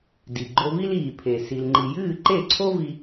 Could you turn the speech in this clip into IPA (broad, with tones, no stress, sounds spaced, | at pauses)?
d i˩ ɡ͡ǃ o˧ v i˥ l iː˩ pʰ e˩ s i˩ l ŋ͡ǃ i˩ j ɨː˥˩ ǃ e˥˩ ǀʰ o˥ v i˧